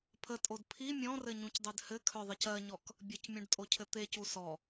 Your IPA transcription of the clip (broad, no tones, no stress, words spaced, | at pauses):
pʰətʼod pʰi mʲɔ̃rɘɲũcdˤød hɘkʰœðˤəc ɜɲɔk | bʲɘcmʲũɖtʼocʰɘ t̪ecu sɔ